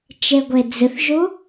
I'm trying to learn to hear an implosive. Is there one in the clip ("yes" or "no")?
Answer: no